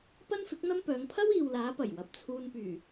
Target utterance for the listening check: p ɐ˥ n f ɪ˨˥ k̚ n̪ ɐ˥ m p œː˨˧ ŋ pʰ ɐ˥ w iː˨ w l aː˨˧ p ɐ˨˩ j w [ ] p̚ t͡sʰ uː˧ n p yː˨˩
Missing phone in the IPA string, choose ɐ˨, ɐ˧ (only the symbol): ɐ˨